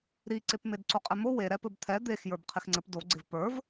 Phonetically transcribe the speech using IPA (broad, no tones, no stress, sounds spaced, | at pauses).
ɾ i ǀ e p m e d ǀ o qʼ ɛ m o w e ɾ ɛ p ɘ b t̪ʰ ɛ d̪ e x j ə˞ b qʰ ɪ x ŋ͡ǀ ɘ p d o ɡ͡ǀ ɪ v p ə˞ v